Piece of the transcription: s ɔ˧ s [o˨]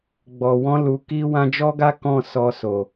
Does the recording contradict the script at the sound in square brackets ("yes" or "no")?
no